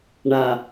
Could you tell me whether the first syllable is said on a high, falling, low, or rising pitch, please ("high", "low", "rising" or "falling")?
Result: low